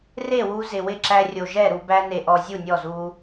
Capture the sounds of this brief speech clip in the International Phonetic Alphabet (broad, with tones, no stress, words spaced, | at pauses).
re˥˩wu˧ zɪ˨˩wɪ˥˩ ǁæ˧rʲo˨˩ ʒɛ˥˩ɾu˧ bæ˧ne˨˩ʔɔ˨˩ zʲu˥˩nʲɔ˥˩zu˧